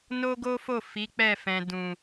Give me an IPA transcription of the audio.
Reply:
n o˦ ɡ o˦ f o˦˨ f i˨˦ k͡p ɛ˦˨ f ɛ̃˨ d ũ˨

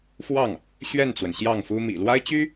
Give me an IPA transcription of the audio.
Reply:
f w ɑ˥˩ ŋ | ɕ ɥ ɛ˥˩ n t͡s w ə˩ n ɕ j ɑ˥˩ ŋ f u˥ m ḭ˨˩ l w a˥ ɪ̯ t͡ɕ y˥

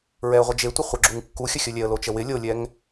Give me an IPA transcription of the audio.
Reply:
ɹ ɛ ə̯ ʁʷ ə d͡ʒ e tʷ ɪ χʷ ə ɡ͡ǁ u ŋ kː u xʲ ə xʲ ə lʲ ɛ ə̯ l o t͡ʃ ə w ɪ lʲ o lʲ ɛ ŋ

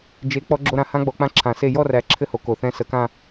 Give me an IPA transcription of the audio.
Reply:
d͡ʒ e˨˦ k͡p ɔ˦˥ ɡ͡ǁ o˥˧ ɾ ã˥˧ h ã˦˥ ɡ͡b ɔ˨˦ k͡p ã˦˥ ǁʰ ã˨˩˦ s e˥˧ j ɔ˥˧ r æ˨˦ ǁʰ ɘ˥˧ h o˨˦ k o˨˩ θ ɛ̃˦˥ s ə˨˦ k ã˥˧

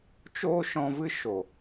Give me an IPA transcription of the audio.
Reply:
t͡ʃ oː˦ ʃ ɔ̃˧ v ɨ˦ ʃ o˨

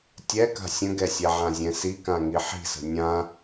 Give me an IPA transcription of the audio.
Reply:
tʲ ɛ k a̤ sʲ ə̃ ɡ ɛ sʲ ɛ ʕ ã zʲ ɛ̃ s i k ã ŋ i ħ i̤ s ə̤ nʲ ã

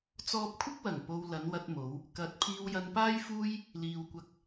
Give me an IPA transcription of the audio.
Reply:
t͡s ɔː˧ p̚ kʷʰ ɪ˥ k̚ w ɐ˨˩ ŋ p o˨ w l ɐ˨˧ n w ɐ˧ t̚ m o˨˧ w | k ɐ˨˥ t̚ pʰ iː˧ w j ɐ˧ n p aː˥ j f uː˥ j | l iː˨ w kʷ ɐ˧ k̚

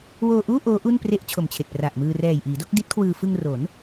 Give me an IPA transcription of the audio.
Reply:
w oː˧ ʔ uː˥˩ ʔ oː˦˥ ʔ u˥˩ n p r e˥˩ ʔ t͡ɕʰ o˨˩ m t͡ɕʰ e˨˩ k̚ p r a˨˩ ʔ m ɯː˧ r ɛː˨˩ j ʔ iː˩˦ d o˥˩ k̚ d i˦˥ t̚ kʰ w ɯː˧ f ɯ˧ ŋ r o˩˦ n

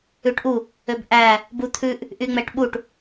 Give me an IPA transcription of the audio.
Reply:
ʉ ʈ ʔ u | ø b ʔ æ | b u t̪ʰ ʉ ʔ | ʔ y ŋ͡m ɛ ʈ ɓ u ʈ

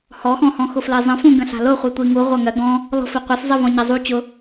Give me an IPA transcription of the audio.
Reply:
h ɔ x ɔ̃ h ɔ̃ x ʊ f l ɜ zˤ ə̃ f ũ ɡ ə̃ ɬ a̤ l ʊ χʷ i tʷ i ŋ u ʁʷ ɐ ŋ ɜ ɡ ɔ̃ | l ɔ̤ f i qʷ ɐ s zˤ ɜ v ɔ̃ ɲ ɐ zˤ u t͡ɕ ʊ

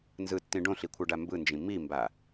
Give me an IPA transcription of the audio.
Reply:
n z ɯ tː ĩ ɖ õ ɬ i kʷʰ ɤ ɖ a m b ɯ n d͡ʒ ĩ m i m b a

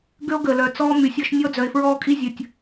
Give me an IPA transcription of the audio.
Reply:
ɡ ø˦ o̯ ɡ əː˨ l œ˨ t͡s ɔː˦ m y˨ sʲ ɔ˦ ʃ nʲ ɔ˦ d͡z œ˨ e̯ f ɹ ɔː˦ kʼ i˦ zʲ əː˨ tʲ

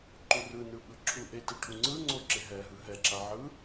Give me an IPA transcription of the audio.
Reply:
ǃ u r ɯ n ɯ ɓ ɯ ǁʰ u ʔ e t e ʈʰ u ŋ͡ǀ ɯ ŋ͡ǀ o ǁ e ɦ ɛ ɦ ɯ ɦ ɛ ǁ a ʕ ɯ

